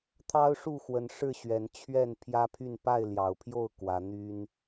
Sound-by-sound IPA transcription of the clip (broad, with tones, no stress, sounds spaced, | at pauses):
t̪ʰ ɑ˦ ʊ̯ ʂ u˥˨ x w ə˨˦ n ʂ ɻ̩˥˨ ɕ ɥ ɛ˨˦ n t͡ɕʰ ɥ ɛ˥˨ n pʰ j ä˦ pʰ y˥˨ n p a˥˨ ɪ̯ l j ɑ˨˩ ʊ̯ pʰ j o˥˨ ʊ̯ k w ä˨˦ n̪ y˦ n